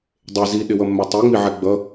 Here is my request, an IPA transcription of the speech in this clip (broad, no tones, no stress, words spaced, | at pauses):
dˤe ziɗɪwʌmːɛ tˤiŋ͡miʕɛ ɡ͡bʌ